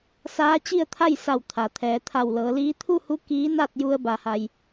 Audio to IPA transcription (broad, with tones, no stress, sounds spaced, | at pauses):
s aː˧˥ t͡ɕ i˥˨ ə̯ t̪ʰ a˥˨ j s a˧˩ w t̪ʰ a˩ t̪ʰ ɛː˩˧ t̪ʰ a˧˩ w l ɤː˩˧ l iː˧˥ t̪ʰ u˥˨ h u˧˥ k iː˧˥ n a˥˨ t̚ j u˧ ə̯ b a˩ h a˩ j